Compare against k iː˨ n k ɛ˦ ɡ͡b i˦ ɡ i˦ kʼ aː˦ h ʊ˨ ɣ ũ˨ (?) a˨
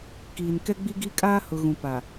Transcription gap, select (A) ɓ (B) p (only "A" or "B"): B